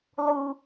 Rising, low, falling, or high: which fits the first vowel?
high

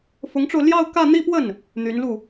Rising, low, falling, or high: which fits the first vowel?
rising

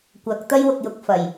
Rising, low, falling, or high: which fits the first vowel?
rising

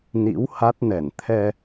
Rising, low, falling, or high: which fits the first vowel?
rising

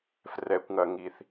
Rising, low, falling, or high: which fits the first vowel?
low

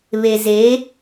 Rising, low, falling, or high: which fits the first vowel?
low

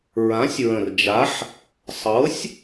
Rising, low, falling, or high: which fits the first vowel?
rising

